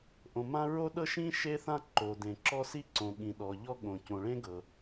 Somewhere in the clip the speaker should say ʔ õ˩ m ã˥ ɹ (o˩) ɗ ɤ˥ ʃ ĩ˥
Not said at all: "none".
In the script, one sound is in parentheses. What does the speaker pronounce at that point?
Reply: o˥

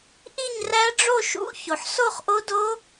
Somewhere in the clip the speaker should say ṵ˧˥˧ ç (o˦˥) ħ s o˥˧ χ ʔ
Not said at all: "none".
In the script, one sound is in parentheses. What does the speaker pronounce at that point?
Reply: o˩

